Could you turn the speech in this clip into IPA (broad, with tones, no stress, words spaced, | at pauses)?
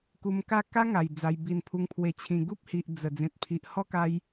ku˧mka˥˧ ka˦ŋa˨˩j d͡za˧jbi˧npʰu˧ŋ pʰwe˨˩t͡ɕʰĩ˨˩ɡu˦p̚hi˨ʔ d͡zə˨˩ d͡zẽ˨t̚pʰi˨ʔhɔ˦ka˧j